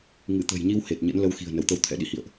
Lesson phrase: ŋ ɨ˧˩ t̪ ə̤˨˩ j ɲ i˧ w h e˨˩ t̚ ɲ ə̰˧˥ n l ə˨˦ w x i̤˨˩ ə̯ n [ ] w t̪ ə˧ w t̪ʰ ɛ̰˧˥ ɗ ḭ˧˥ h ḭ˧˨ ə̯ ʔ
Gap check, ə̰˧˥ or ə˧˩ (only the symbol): ə˧˩